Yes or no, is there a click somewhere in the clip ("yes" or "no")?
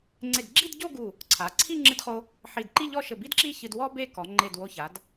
yes